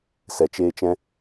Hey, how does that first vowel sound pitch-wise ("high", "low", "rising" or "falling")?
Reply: low